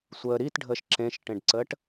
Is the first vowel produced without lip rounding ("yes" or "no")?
yes